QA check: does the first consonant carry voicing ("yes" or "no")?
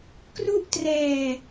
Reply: no